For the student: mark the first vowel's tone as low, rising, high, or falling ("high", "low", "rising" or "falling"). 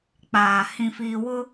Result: low